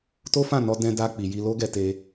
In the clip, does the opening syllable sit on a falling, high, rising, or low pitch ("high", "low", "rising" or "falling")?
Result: high